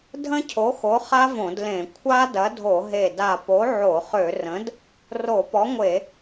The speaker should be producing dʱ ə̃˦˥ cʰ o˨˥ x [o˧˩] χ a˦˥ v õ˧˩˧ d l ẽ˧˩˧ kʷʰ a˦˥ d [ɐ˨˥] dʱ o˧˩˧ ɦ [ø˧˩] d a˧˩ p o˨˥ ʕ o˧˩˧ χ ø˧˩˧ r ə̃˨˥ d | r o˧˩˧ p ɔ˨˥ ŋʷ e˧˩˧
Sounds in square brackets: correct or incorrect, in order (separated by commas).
incorrect, correct, incorrect